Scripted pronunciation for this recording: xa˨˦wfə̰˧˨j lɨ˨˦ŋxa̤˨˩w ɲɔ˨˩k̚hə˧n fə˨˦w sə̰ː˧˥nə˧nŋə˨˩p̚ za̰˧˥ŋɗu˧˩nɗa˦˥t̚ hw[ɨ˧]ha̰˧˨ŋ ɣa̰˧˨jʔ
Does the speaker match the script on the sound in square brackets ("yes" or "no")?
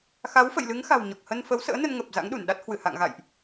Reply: no